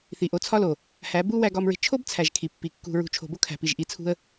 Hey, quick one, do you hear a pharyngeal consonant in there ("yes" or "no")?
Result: no